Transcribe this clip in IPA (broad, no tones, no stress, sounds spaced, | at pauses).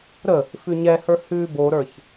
ɾ ə | f ʉ ɲ ɛ h ə˞ h ʉ b o ɾ ə˞ ç